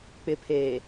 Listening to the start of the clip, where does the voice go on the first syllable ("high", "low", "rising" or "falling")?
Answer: low